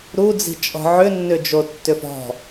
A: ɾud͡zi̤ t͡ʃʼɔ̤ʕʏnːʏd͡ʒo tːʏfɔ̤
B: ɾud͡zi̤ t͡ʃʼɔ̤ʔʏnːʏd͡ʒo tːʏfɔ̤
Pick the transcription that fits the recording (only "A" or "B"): A